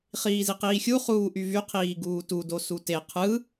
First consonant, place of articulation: uvular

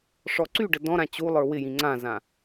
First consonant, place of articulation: retroflex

